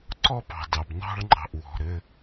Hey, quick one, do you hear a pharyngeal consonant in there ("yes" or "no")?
no